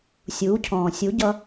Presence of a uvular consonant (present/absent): absent